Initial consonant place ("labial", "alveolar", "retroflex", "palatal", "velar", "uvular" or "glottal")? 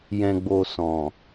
palatal